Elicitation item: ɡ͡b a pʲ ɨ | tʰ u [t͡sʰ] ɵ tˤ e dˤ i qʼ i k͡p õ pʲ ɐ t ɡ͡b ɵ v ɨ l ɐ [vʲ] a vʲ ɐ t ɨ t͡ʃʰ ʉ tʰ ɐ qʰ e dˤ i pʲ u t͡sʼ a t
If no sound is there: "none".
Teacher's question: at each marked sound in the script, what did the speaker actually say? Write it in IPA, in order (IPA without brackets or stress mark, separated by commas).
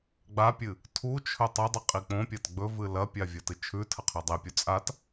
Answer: t͡ʃʰ, pʲ